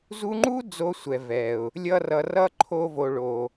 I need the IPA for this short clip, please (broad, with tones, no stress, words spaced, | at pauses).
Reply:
zu˧ŋ͡ǃu˦ d͡zo˦sʷɛ˨vɛ˨ʊ̯ | lʲʌ˧rʌ˨rʌ˦ ǃʰo˧vo˨ɭo˨